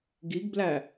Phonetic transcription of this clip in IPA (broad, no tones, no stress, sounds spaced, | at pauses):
ɡ i ɡ b l æ